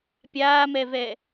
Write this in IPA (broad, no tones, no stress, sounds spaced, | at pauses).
pʲ aː m ɛ v ɛ